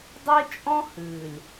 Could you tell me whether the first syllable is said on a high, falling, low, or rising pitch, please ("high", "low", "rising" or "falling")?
high